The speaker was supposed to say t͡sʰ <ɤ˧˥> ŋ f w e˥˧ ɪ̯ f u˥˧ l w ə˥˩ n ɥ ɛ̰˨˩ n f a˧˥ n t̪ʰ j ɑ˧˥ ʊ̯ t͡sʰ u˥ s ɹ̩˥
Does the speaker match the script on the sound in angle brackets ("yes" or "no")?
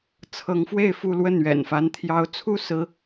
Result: yes